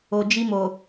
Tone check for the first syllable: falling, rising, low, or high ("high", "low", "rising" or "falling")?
low